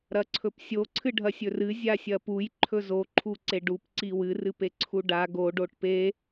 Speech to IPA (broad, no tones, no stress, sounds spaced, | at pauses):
ɾ ɐ ǀʰ ɵ p sʲ o ǀʰ ɨ ɖʱ ɐ sʲ ɵ r ɨ zʲ a sʲ ɐ p u j ǃʰ ɵ z o ǃʰ u ǀ e ɖ u p ǀ i w ɨ r ɨ p e ǀʰ u ɖ a ɡ o ɖ o ʈ p e